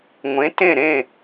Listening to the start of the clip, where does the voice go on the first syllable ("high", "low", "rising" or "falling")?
rising